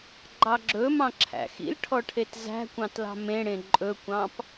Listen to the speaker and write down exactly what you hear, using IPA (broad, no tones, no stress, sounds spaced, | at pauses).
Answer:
ɡ͡ǃ ɑ ɡ͡ǁ ɵ m ɑ̃ ǁʰ æ̰ x ḭ l ʈʰ ɔ ʈʰ e t z æ̤ kʷ ɑ̃ t l ɑ̤ m ẽ ɽ ẽ ǃʼ ɵ kʷ ɑ̃ p